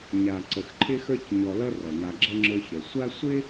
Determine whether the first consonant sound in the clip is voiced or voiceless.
voiced